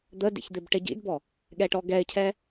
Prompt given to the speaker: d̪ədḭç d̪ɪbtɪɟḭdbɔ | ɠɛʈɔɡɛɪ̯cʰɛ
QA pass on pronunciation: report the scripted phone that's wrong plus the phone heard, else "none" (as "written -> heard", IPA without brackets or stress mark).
t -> ʈ